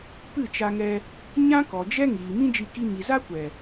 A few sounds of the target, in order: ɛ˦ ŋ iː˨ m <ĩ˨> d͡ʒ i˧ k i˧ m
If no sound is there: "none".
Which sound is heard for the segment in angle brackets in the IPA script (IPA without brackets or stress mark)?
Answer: ĩ˦